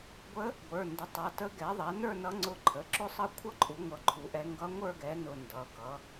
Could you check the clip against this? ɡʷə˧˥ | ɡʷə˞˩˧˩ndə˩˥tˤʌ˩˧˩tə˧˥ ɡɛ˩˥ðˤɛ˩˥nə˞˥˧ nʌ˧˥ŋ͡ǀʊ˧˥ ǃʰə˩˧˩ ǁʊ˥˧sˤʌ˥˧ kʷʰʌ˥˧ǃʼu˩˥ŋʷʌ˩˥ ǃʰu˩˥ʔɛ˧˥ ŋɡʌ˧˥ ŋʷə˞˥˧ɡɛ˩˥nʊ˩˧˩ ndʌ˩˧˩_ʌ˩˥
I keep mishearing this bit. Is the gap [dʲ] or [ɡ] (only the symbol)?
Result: ɡ